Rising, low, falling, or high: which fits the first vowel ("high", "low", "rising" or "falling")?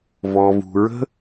low